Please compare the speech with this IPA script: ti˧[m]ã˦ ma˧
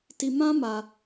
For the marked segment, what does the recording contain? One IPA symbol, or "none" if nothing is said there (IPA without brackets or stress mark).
m